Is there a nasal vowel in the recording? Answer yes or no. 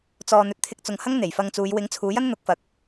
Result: no